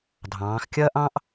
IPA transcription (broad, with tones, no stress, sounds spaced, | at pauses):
dʱ ɑ̃ː˩˧ x kʲ ɐː˥ ʔ ɑ̃˥ ʔ